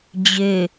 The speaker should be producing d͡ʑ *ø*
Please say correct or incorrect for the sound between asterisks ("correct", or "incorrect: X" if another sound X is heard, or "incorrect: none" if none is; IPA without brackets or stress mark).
correct